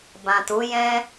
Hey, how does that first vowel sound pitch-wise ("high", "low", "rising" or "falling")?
low